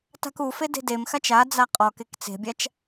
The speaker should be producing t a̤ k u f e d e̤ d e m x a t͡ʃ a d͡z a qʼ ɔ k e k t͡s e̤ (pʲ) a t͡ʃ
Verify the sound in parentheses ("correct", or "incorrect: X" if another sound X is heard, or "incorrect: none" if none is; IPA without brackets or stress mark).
incorrect: bʲ